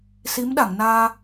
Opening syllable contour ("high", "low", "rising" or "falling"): rising